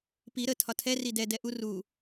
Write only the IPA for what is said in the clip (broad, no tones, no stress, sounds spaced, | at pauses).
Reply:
p i ɾ ə tʰ ɒ tʰ ɛ r i d ɛ d ɛ ʔ u r u